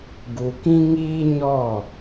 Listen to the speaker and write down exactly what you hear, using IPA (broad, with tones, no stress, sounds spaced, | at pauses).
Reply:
ɡ u˨ k ĩ˦ ŋ iː˦ ɲ ɔ˦˨